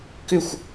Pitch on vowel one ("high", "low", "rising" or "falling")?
falling